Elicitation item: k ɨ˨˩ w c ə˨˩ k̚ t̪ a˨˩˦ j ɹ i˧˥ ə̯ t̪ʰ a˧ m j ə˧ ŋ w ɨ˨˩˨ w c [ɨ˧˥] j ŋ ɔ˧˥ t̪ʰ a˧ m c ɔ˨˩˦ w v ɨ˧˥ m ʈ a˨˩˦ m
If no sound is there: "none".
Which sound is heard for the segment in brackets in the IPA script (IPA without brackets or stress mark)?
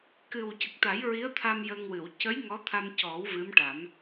ə˧˥